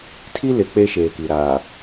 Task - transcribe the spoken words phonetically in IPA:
tʰ i˦ l ɪ˨ k͡p e˦ ʃ eː˨ k i˨ ɾ aː˨

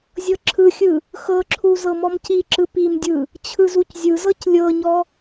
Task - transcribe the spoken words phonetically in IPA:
zʲ ɤ ǁʰ ɯ xʲ ɯ | x ɤ ǁʰ u z ɤ m ɔ m c i ǁ ɯ p i m dʲ ɯ | t͡ɕʰ ɯ z u c zʲ ɯ z ɤ c lʲ ɤ ɲ ɔ

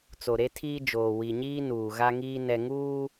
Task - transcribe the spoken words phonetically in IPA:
t͡s o˨ ɾ e˦ tʰ iː˦ d͡ʒ oː˨ w i˨ ɲ iː˦ n uː˨ ɣ a˦ ŋ iː˦ n ɛ˨ ŋ uː˦

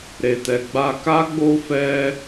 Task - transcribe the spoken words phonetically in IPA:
ɾ e˨ t ɛ˨ ɡ͡b a˧ k a˦ ɡ͡b o˦ f ɛ˦

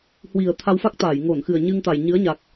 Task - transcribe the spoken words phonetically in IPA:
h w i˨˩ ə̯ t̪ʰ a˧ w f a˦˥ k̚ t̪ aː˧˩ j ŋ o˧˩ n x ɨ˨˩ ə̯ ɲ ɨ˧ ŋ t̪ a˨˩ j ɲ ɨ˨˦ ə̯ ɲ a˨˩ k̚

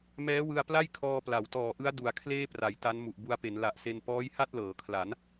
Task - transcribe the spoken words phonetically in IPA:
m ɛː˦˥ w ɯ˧ a̯ p l a˥˩ j kʰ ɔː˧ p l a˩˦ w t ɔː˨˩ ʔ ɯ˦˥ a̯ d u˨˩ a̯ kʰ l eː˥˩ p r a˩˦ j t a˦˥ n m u˨˩ ʔ b u˧ a̯ p e˩˦ n l a˨˩ ʔ s e˧ n p ɔː˦˥ j h a˥˩ t̚ l ɤː˩˦ kʰ l a˩˦ n

